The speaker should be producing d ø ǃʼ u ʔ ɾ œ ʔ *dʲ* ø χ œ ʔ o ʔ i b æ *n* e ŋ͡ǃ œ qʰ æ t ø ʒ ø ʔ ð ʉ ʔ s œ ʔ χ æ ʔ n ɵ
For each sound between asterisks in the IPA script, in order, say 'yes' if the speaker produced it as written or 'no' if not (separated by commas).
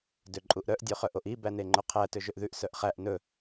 yes, yes